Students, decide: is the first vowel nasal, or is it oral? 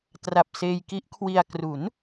oral